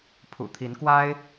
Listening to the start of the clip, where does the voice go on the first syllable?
low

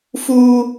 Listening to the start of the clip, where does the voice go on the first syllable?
high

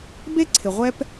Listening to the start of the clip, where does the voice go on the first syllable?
high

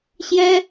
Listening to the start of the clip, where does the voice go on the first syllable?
high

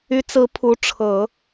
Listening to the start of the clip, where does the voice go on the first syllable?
rising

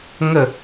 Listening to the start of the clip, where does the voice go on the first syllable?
falling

